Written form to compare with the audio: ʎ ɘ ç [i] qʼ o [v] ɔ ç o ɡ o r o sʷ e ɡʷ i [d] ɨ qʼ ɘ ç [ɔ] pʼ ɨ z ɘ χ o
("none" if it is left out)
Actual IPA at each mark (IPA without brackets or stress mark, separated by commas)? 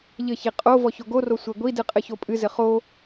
i, v, d, o